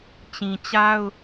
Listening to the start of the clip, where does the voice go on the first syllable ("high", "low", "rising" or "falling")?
low